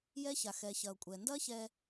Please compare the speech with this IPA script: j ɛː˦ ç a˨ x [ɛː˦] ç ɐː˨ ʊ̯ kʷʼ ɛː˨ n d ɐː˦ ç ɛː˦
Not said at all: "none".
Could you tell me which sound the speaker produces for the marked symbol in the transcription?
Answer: ɛː˨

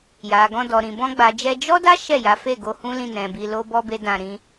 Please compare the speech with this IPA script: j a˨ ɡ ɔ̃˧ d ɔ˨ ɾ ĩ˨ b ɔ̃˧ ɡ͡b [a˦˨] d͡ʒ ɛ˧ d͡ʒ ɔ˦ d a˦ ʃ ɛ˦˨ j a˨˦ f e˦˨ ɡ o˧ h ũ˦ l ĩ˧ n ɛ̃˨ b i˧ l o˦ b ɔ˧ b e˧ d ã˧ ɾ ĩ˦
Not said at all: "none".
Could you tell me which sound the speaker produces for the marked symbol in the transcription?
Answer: a˨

